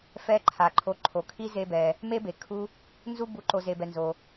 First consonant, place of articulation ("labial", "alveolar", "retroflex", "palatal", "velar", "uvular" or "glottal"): labial